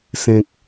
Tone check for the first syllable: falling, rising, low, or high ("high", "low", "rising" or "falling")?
low